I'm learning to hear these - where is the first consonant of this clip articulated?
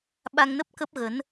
lips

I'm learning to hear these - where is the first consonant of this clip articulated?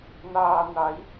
tongue tip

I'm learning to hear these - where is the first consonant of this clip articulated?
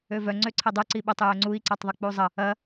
lips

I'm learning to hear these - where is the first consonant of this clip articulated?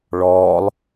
retroflex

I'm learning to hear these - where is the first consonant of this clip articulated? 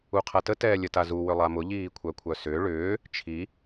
uvula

